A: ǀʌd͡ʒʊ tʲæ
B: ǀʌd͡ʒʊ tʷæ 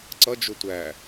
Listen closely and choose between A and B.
B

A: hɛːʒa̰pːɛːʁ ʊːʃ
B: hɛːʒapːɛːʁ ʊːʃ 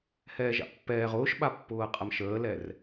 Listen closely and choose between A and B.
A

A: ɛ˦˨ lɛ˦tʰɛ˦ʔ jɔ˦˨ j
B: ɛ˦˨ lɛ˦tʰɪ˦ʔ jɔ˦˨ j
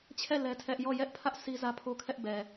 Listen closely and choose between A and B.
A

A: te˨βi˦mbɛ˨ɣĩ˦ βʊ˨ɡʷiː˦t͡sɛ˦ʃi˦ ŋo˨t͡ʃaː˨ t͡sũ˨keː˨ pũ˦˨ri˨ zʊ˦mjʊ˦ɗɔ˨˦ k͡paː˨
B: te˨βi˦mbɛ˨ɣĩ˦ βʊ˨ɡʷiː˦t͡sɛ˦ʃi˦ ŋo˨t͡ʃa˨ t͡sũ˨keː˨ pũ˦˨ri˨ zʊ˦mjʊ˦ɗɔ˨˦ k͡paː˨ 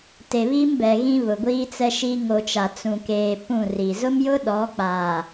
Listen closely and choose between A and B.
B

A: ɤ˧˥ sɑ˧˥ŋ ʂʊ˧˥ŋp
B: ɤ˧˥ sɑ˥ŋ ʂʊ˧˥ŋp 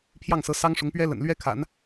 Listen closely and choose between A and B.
B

